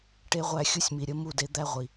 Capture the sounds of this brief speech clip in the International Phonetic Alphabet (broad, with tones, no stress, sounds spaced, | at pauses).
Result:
ʈ e˦ ʁʷ æ˦˨ xʲ u˦ sʲ m i˨ ɾʲ ə˨˦ m u˦˨ d e˧ d̪ æ˦ ʁʷ i˨